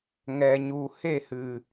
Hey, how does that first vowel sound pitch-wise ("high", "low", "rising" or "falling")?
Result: low